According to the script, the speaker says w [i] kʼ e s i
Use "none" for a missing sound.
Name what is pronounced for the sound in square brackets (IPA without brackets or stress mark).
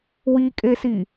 i